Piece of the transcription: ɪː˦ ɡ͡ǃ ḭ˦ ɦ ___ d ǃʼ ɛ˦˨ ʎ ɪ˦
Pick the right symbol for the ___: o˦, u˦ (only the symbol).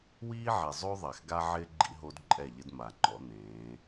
o˦